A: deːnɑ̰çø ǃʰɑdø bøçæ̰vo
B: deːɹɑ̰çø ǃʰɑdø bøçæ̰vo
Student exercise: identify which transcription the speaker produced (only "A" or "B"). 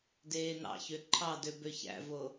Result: A